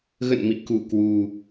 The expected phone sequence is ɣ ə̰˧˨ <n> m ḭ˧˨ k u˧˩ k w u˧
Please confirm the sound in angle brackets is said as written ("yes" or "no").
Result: yes